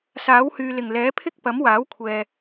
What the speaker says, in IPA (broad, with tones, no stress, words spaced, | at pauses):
saː˨˥whyː˨lɪ˨˩ŋlɛː˨˥ pʰɪ˥k̚pɐ˨˥mwaː˨˥wkʷʰɛː˨